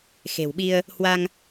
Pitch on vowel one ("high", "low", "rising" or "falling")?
low